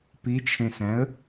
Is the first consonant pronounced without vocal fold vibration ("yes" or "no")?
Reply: yes